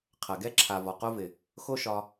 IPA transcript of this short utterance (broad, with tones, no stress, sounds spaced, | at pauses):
qʰ ɐ˨ ɡ ɛ˦ ǁʰ a˨ v ɒ˨ q o˦ v ɪ˨ | x o˦ ʃ ɒ˧